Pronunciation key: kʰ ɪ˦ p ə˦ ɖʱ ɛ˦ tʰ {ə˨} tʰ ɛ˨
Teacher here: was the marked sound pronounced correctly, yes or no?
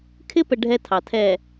no